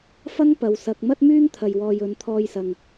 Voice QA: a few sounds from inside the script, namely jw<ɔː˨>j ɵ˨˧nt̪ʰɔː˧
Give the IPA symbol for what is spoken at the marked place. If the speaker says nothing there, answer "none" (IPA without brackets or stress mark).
ɔː˨